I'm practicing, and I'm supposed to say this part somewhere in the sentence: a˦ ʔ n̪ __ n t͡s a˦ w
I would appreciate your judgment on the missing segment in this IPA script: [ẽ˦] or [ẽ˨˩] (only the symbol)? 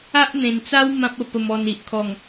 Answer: ẽ˨˩